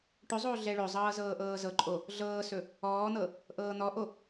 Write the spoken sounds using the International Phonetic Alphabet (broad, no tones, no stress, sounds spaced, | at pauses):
ʈ ɵ zˤ oː ɮ ɛ ɭ ɵ zˤ ɤː z ɤː ʔ ɤː z ɤ ǃʼ o | ɮ ɤː s ɵ | ɔː n̪ ɤ | ʔ ɤː n̪ ɔ ʔ o